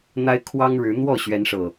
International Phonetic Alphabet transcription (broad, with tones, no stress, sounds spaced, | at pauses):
n̪ a˦ ɪ̯ kʰ w ɑ˦ ŋ ɻ ɻ̩˨˦ n̪ w ɔ˥˨ ɕ ɥ ɛ˨˦ n ʂ ɤ˨˩